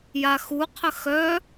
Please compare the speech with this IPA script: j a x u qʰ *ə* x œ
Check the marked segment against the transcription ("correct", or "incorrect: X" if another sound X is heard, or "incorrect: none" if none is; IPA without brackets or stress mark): correct